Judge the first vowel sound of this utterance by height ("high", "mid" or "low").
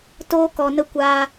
mid